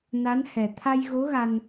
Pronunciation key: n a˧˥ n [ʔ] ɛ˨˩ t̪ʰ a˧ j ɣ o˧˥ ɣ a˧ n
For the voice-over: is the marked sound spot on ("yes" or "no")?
no